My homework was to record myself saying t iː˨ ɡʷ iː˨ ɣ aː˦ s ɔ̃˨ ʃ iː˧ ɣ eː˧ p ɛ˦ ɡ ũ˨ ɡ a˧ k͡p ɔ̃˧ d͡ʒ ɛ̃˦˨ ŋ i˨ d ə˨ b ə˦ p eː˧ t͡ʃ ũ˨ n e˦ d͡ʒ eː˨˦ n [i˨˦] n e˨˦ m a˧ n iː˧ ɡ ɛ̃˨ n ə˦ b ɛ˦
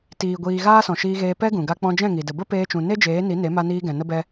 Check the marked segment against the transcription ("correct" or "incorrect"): correct